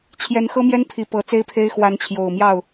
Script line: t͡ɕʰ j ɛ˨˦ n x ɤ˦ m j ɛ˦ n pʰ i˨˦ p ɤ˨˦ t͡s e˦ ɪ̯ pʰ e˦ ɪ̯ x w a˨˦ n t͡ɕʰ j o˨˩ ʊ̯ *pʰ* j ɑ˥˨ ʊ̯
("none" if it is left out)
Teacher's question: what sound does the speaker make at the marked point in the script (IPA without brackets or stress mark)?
m